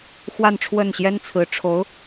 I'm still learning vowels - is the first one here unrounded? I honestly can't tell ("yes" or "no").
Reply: yes